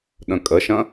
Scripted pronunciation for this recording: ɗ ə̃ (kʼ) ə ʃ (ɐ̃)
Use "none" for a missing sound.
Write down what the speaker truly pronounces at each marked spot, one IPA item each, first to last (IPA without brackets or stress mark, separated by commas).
kʼ, ɐ̃